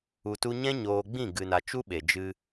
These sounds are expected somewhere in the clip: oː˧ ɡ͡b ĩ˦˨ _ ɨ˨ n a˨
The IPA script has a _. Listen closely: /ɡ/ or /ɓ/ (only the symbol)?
ɡ